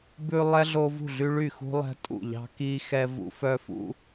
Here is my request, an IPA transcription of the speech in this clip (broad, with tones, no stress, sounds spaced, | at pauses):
b ʉ˦ lˠ ɛ˦ ɮ o˦ v ṳ˥˩ ɮ y˦ ɭ y˥˩ x ṳ˦ lˠ ɛ̤˦ tʼ ṵ˥˩ ʎ ɑ̤˦ k i˦ x ɛ˦ v ṵ˦ f œ˦ f ṵ˦